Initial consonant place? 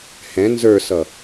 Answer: glottal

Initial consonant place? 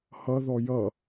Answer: glottal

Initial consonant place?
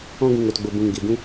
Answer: velar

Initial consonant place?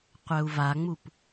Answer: uvular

